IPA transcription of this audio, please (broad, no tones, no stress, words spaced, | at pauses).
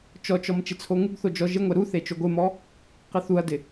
t͡ʃɔt͡ʃɔm t͡ʃɪt͡sʰoŋuɡθo d͡ʒɔʒɪŋʷɛ ɾuθe t͡ʃoɡʷemɔ | qɪθuɐ̯dɪ